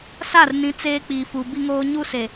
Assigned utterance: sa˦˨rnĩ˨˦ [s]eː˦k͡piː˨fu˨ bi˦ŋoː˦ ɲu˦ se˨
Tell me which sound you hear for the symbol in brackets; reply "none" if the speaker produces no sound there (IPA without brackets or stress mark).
t͡s